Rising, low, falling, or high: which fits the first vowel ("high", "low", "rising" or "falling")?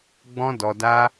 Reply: high